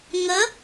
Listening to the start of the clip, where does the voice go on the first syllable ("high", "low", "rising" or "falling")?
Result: rising